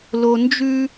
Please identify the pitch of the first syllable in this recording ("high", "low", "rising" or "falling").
low